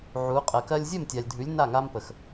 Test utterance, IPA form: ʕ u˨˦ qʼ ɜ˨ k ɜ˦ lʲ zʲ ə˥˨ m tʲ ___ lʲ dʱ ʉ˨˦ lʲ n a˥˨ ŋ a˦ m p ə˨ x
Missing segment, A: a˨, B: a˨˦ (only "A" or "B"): A